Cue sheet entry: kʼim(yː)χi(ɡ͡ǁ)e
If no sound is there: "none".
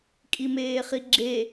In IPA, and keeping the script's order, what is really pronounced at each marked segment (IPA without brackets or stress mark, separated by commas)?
eː, ɡ͡ǁ